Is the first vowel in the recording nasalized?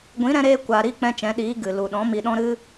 yes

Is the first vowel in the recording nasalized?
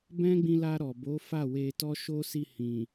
yes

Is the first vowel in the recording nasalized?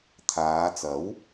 no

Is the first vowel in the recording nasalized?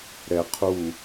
no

